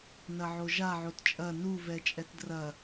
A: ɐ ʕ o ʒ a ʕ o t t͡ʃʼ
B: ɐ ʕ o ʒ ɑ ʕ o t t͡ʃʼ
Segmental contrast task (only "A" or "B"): A